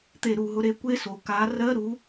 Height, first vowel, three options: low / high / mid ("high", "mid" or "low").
mid